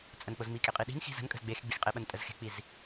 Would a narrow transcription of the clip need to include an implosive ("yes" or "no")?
yes